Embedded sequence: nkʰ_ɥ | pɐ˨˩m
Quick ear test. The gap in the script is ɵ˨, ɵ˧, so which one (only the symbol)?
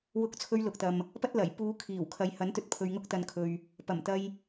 ɵ˨